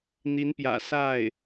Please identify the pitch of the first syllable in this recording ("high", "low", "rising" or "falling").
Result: rising